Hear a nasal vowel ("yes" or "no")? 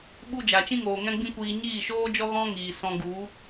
yes